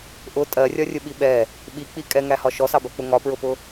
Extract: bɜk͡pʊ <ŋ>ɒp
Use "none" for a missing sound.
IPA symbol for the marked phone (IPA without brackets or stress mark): ŋ